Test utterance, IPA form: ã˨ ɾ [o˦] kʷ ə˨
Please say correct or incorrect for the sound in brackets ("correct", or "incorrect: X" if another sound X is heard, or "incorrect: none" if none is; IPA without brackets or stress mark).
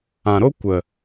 correct